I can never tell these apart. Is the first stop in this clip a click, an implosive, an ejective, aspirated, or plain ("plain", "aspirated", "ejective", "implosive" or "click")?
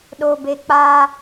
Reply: implosive